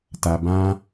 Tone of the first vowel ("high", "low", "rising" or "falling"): low